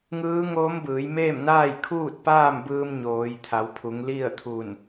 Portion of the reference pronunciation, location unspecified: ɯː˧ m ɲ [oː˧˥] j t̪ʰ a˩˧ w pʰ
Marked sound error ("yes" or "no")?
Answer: yes